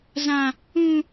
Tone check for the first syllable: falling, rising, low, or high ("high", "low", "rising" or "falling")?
high